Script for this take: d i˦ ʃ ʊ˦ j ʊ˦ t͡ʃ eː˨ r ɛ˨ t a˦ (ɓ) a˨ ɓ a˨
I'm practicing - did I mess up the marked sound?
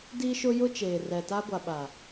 yes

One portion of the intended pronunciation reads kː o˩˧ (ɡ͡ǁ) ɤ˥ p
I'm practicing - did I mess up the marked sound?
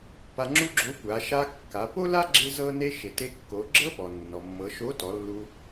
no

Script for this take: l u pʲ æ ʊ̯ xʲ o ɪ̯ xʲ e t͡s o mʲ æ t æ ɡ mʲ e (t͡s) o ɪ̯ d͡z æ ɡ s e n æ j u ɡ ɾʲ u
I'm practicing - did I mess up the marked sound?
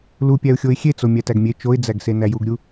yes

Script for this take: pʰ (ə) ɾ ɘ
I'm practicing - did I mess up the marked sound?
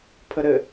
no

